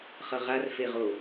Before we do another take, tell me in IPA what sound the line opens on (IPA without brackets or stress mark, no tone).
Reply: χ